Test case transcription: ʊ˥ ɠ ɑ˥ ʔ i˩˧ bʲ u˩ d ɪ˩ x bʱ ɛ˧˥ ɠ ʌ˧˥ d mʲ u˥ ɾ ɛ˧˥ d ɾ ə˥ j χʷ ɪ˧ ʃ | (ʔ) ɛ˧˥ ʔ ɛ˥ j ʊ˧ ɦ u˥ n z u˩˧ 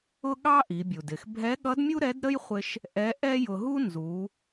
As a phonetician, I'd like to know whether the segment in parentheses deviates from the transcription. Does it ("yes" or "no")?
no